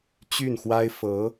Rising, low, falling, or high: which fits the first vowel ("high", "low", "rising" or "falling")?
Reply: falling